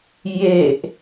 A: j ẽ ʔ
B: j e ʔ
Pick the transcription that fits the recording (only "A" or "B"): B